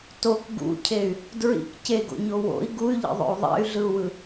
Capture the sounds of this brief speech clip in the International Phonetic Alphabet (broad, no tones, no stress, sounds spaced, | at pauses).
t o k ɡ ṵ cʰ e y̯ | d ɹ ḭ k c e ɡ o̰ ɲ o w o̰ i̯ ɡ u y̯ ʎ ḭ ðˤ o̰ u̯ ðˤ ɛ̰ y̯ ɮ ɯ u̯ w ɯ